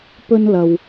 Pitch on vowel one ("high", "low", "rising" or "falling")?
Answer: high